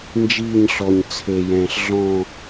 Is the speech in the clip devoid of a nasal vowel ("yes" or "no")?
no